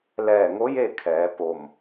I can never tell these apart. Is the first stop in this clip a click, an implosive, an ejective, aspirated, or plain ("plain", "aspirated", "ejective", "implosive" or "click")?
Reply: aspirated